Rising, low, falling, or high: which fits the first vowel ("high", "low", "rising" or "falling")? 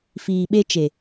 low